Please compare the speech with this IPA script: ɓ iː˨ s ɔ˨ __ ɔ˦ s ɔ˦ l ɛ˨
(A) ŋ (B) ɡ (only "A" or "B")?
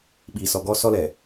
B